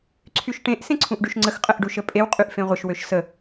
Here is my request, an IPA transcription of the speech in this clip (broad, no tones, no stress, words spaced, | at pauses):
ǀʰyʃʈẽʔ sẽǀʰũʔɖyʃŋ͡ǀəx qʼəʔɖuʃəpʼew qʼyʔfẽʁʷəʃ wøʃsə